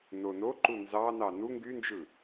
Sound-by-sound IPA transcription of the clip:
n o n o ǃ u n z ɑ n ɑ n u ŋ ɡ y n d͡ʒ ɯ

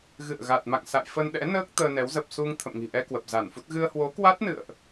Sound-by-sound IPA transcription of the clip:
ɣ ɨ̰˧˨ ə̯ ɣ a˨˩ t̚ m a̰˧˨ ŋ s a̰˧˨ j f ə˧ n ɗ ɛ̰˧˥ n əː˦˥ k̚ t̪ əː˧ n ɛ˨˦ w z ə˨˩ p̚ s u˧ ŋ t̪ʰ ə̰˧˨ m ŋ i̤˨˩ ʔ ɛ˧ k w ə˨˩ p̚ z a˧˩ n f u˦˥ t̚ ɣ ɨ˧ ə̯ h w o˨˦ k w a˦˥ t̚ n ɨ̰˧˨ ə̯ ʔ

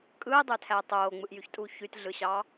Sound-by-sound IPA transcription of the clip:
kʼ ɯː dˤ ø tʰ æ tˤ oː ŋ͡m ɯ ʔ j y ç tʼ uː ç y t ɮ ɯ ɕ ɑ

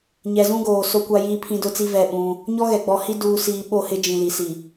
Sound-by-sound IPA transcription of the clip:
ɲ ɛ˨ z ũ˦ ɡ oː˨ s o˦ kʷ a˦ j iː˦ pʰ ĩ˦ d ʊ˦ t͡s i˦ v ɛ˦˨ ɓ ũ˦ | ɲ ɔ˦ ɣ ɛ˨ ɡ͡b ɔ˨ h i˦ d uː˨ s iː˨ ɓ o˦˨ h ɪ˦ d͡ʒ ĩ˨ l i˨ s i˨

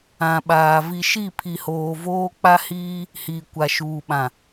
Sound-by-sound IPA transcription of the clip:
ã˨ ɓ aː˨ v i˨ ʃ i˦˨ pʰ i˨ h oː˨ v oː˦ k͡p a˦ h iː˦ | h iː˨ kʷ a˨ ʃ uː˨ ɓ ã˨

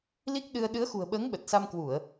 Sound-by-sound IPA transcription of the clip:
l i˦˥ k̚ ɗ ɨ˧ ə̯ ɗ ɨ˨˦ ə̯ x ṳ˨˩ ə̯ ɓ əː˨˦ ŋ ɓ ə˨˩ t̚ s a˧ m k w u˧˩˨ ə̯

